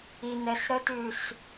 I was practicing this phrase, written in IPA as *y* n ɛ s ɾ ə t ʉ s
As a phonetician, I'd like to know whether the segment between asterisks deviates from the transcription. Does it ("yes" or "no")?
yes